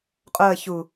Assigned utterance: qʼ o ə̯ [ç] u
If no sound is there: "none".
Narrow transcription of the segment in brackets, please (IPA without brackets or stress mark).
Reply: ç